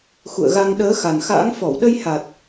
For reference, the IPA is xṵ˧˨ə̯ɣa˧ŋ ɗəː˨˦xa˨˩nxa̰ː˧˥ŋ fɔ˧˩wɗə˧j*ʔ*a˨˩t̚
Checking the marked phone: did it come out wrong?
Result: yes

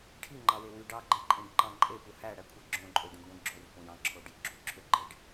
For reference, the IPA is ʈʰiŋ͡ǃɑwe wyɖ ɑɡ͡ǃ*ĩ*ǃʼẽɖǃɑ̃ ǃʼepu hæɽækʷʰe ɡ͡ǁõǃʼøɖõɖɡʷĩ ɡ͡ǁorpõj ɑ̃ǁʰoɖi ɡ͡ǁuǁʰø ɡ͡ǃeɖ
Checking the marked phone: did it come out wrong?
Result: yes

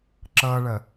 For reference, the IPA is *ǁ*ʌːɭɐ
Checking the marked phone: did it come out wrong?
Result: no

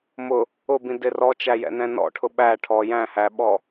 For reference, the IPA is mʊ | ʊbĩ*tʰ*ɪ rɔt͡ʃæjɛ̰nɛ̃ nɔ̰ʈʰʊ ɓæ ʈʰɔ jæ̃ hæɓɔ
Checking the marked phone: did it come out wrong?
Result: yes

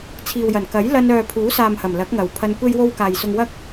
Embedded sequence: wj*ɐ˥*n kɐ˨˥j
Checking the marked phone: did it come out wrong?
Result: yes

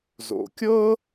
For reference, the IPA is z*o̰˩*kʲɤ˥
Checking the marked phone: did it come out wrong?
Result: no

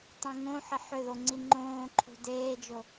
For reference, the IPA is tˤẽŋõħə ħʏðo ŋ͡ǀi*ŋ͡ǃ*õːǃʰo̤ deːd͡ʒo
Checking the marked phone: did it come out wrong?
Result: no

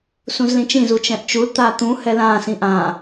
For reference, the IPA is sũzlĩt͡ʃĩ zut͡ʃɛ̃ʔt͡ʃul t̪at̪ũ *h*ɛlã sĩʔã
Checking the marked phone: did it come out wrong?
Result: no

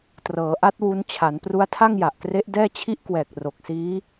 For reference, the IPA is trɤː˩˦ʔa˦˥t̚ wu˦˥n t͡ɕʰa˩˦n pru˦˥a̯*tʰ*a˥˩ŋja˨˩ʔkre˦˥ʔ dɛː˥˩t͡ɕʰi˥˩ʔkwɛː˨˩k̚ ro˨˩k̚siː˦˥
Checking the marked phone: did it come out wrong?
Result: no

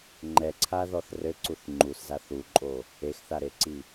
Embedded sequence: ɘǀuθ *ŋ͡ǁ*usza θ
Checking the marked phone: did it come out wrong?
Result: yes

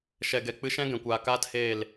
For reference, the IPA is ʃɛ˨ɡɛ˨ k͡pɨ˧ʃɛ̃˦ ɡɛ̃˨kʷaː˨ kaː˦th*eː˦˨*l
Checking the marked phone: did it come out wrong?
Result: no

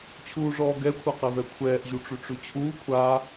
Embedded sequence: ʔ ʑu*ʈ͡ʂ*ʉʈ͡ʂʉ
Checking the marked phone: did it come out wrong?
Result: no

